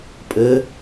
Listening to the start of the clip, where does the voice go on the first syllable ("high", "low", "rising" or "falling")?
rising